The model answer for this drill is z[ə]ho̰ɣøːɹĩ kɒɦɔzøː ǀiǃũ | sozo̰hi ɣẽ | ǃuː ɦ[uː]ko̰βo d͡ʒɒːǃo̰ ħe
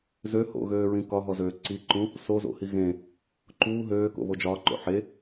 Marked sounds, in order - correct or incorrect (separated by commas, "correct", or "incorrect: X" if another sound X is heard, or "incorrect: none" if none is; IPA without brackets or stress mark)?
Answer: incorrect: ø, incorrect: øː